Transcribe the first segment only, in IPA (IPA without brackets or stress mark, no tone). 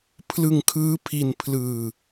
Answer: pʰ